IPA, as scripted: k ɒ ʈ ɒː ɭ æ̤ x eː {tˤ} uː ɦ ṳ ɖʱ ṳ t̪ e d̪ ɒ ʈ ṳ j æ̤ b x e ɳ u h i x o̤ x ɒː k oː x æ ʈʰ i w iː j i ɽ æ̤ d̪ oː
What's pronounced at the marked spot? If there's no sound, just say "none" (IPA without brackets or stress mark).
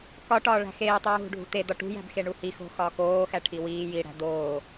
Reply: tˤ